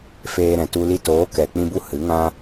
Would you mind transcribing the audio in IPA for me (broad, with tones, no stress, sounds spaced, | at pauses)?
f eː˧ ɾ ɛ̃˨ t u˧ l i˧ t oː˨˦ k ɛ˨ k͡p ĩ˧ b u˧ h ɨ˨˦ ŋ ã˦